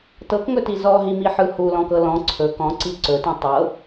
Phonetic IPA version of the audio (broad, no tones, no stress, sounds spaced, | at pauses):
t ɤ k ŋ ɵ t i z ɔ ɦ i m i ħ ɯ h u l ɔ̃ k ɤ l ɔ̃ ǀʰ ɵ k ɔ̃ ǀ i ǀ ɵ t ĩ tˤ ɤ